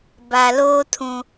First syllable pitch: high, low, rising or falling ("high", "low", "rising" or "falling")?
low